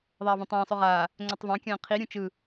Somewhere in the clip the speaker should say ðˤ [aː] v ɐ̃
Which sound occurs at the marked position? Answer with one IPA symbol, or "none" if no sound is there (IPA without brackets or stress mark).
aː